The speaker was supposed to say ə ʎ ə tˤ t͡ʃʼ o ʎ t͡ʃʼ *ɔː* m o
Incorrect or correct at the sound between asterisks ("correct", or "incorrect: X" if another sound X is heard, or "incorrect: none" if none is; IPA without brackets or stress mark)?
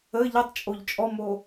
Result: incorrect: ɔ